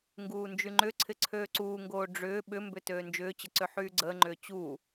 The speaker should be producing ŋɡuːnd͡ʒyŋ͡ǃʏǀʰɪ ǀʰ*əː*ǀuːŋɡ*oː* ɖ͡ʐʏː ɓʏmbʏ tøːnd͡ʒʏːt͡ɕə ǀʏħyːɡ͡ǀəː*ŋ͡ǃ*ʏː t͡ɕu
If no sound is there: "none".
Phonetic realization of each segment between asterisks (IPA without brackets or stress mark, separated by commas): øː, oː, ŋ͡ǃ